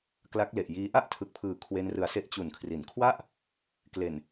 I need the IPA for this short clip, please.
k l a˦˥ k̚ l e˨˩ ʔ j iː˦˥ ʔ a˥˩ ʔ tʰ ɯ˨˩ k̚ pʰ ɯː˨˩ kʰ w e˧ n r ɯ˨˩ a̯ s e˦˥ ʔ t͡ɕ u˨˩ n kʰ r i˩˦ n kʰ w a˥˩ ʔ | k l e˨˩ n

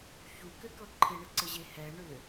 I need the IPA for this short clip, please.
ç u k ɘ k ɤ ǃʰ ɪ ɳ ɪ ǀ ɘ ʑ e h ɛ ɳ ʏ

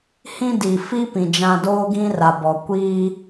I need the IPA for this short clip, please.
h ĩ˦ d i˨ f i˦ p ĩ˨ d͡ʒ ã˨ d oː˦ ɡ ĩ˦ r a˨ b ɔ˨ kʷ iː˦

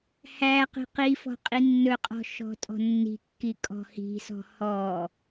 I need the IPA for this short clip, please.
h æ q i̤ q i f ɔ̤ qʼ i nː ɵ qʼ ɔ̤ ʃ ɔ̤ tʼ ɔ̤ nː i̤ kː i kʼ ɔ̤ h i̤ s ɔ̤ h ɔ

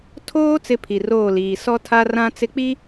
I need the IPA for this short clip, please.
tʰ oː˦ t͡s ɪ˦ pʰ i˨ r oː˦˨ l iː˨ s ɔ˦ tʰ a˦ r ã˦ t͡s ɪ˦ k͡p i˦

